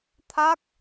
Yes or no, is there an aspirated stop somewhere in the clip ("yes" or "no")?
yes